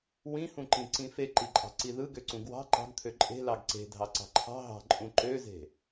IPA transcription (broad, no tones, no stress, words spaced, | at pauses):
wĩhũǃĩǀĩ feǃiǃʼɑ̤ ǀiðɯɡøǀũ ɡwɑ̤ ǃɑ̤ɡ t̪ʰøǃʼe̤ lɑɡǀe̤ dʱɑǀɑ̤ǃʰɑ̤ ɦɑ̤ǃʼũ ǃøze̤